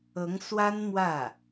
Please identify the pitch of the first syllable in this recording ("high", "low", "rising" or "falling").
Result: rising